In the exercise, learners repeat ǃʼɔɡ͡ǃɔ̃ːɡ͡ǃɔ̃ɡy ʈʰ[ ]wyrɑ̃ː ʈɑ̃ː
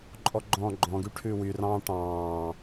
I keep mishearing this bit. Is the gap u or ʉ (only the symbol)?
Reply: ʉ